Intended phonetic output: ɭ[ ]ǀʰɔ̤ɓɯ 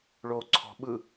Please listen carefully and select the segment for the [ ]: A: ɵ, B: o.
B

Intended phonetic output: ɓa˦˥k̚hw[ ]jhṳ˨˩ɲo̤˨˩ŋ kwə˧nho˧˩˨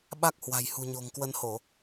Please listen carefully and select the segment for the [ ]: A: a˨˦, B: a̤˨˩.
B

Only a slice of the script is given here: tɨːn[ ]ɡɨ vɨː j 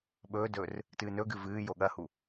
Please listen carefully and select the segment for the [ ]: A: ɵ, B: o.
A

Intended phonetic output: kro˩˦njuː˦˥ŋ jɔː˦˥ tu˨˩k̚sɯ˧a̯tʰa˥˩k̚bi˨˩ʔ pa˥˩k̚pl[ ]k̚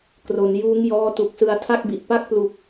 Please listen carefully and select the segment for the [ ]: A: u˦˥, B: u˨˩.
B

